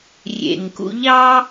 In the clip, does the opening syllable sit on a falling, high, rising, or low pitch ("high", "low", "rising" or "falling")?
low